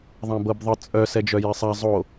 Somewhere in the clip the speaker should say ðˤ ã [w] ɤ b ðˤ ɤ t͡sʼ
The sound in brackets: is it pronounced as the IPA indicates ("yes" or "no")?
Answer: no